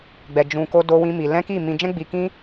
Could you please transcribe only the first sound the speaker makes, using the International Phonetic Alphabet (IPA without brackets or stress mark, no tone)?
ɡ͡b